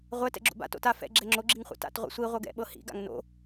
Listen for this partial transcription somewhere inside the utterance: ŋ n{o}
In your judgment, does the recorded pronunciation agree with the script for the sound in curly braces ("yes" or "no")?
no